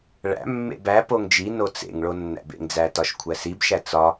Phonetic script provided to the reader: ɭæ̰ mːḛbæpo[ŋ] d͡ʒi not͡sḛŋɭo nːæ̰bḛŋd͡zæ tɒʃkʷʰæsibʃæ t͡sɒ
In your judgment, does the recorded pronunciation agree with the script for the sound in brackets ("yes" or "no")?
yes